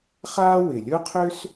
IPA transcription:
χa˥ wɪ˩lʲʊ˥qʰø˥s

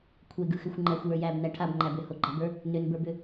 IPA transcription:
kʷʰeɡɯxʏxʷ ŋ͡ǃæxʷjə˞ jæbnæ ʈʰabŋ͡ǃæb ʏhoɡ͡ǃabə˞ | nʏnbə˞bʏ

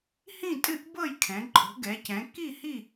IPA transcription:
hĩ˥˨tʼɨ˥˨ʔbɤ˥˨jkʰɛ̃˩˧ ǃʼo̤˩˧ɡɛ˩˧cɛ̃˩˧ ki˥˨hi˥˨

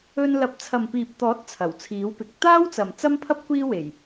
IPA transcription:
ɵ˧n lɐ˨˥p̚t͡sʰɐ˨mpiː˨p̚t̪ɔː˨˥t̚ t͡sʰɐ˨˩wt͡sʰiː˨˥wpɪ˨˥k̚ t̪aː˥wt͡sɐ˨m t͡sɐ˥mpʰɐ˥p̚ kʷiː˥we˨˩j

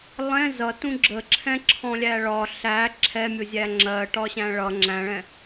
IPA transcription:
lˠɛ̃ zʌtũ ɡ͡ǁəǁʰɛ̃ǁʰɔ̃lʲæ ɭɒ ɬæ ǁʰɛmʲʊzʲæ ŋ͡ǁɜʈɒɕæ̃ ɭʌ ŋ͡ǁæ̃ɭɛ̃

